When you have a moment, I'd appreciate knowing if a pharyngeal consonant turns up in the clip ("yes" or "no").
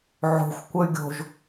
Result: yes